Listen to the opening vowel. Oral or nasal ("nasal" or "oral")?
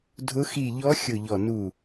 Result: oral